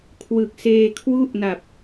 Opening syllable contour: low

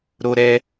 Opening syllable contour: high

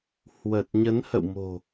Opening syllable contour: low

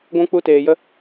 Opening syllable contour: high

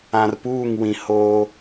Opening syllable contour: low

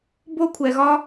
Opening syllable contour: high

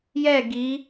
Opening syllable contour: falling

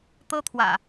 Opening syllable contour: high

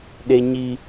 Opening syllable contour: high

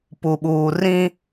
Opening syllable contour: low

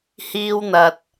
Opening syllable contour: high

